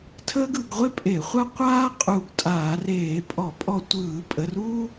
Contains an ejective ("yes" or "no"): yes